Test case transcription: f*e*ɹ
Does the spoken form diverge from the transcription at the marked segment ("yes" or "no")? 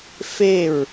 no